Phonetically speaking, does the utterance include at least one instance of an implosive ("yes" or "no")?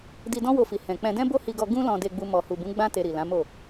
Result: no